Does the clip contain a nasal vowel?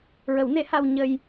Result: no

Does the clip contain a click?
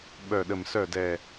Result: no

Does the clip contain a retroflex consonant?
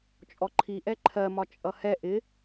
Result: no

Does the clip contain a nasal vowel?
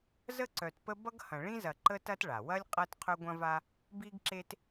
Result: yes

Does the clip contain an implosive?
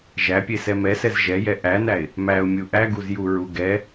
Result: no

